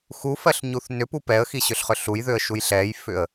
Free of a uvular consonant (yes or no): no